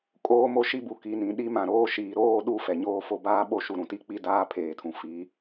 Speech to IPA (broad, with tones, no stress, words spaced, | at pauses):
kʼoː˦mo˦ʃi˦bu˨ ki˨nĩ˨ ɗi˦mã˨ɾoː˦ ʃiː˨ɾoː˦˨ɗu˦˨ fɛ˨ɲoː˦fo˦ baː˦ɓo˦ ʃu˨ɾũ˨ti˦˨k͡pi˦ daː˦pʰeː˨tʰũ˨ fi˨˦